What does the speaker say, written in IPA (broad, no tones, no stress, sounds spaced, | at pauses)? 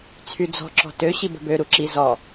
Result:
t͡sʰ y d͡z ɔ̤ ǁ ɔ̤ t ø ɕ i b ə̤ b ø ɾ u ǁ i z ɔ